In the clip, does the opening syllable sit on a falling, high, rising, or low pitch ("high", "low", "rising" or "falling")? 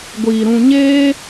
low